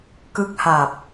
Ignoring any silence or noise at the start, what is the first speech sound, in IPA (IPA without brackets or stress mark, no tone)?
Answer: k